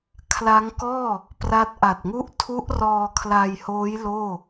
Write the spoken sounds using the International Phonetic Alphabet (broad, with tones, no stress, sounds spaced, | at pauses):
kʰ l a˦˥ ŋ k ɔː˥˩ | p r a˦˥ t̚ ʔ a˨˩ t̚ ŋ u˥˩ ʔ tʰ u˦˥ ʔ r ɔː˧ kʰ l a˧ j h oː˦˥ j l oː˥˩